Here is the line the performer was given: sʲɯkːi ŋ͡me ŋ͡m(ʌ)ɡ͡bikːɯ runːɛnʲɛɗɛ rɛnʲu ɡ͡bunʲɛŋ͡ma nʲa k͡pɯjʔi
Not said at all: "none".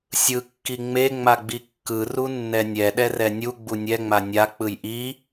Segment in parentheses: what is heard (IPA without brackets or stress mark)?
a